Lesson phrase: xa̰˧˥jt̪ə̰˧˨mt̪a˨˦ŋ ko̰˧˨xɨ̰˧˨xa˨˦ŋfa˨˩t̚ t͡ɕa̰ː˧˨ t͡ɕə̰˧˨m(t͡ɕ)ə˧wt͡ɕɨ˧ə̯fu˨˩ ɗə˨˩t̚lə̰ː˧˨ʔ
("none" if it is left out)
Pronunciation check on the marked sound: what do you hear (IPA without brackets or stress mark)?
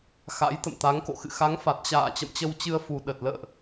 t͡ɕ